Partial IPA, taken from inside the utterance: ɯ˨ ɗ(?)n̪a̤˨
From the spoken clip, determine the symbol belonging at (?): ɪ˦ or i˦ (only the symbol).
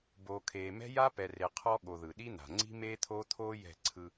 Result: i˦